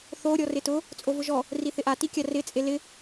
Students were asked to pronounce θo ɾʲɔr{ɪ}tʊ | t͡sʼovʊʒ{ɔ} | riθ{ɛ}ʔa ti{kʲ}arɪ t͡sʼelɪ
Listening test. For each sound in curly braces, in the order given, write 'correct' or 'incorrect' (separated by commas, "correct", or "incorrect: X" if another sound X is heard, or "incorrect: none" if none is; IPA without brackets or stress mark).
correct, correct, incorrect: ɪ, correct